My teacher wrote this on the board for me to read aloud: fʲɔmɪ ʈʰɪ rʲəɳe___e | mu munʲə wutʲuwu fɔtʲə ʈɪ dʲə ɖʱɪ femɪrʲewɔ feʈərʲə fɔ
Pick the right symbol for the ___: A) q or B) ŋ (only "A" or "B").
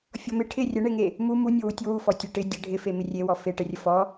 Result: B